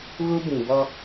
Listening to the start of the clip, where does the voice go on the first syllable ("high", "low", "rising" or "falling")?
high